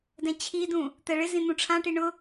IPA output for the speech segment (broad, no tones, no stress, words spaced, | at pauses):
dɛ̃t͡ɕʰidũ | t̪ɛɭɪzĩ n̪ũʈ͡ʂʰãʈi ɳʊ